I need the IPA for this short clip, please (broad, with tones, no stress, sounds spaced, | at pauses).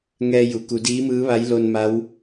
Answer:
ŋ ɛː˧ j u˩ k u˩˧ d iː˧˥ m ɯː˧˥ ʋ a˧˥ j l o˧ n m a˧˥ w